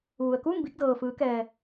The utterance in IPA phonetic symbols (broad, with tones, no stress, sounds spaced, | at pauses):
ʋ u˩ ə̯ k uː˥˨ m b i˥˨ k̚ d ɤː˩ f ɯː˩˧ k ɛː˩